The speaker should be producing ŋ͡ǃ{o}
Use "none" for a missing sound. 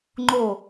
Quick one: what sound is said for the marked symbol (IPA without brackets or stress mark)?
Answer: o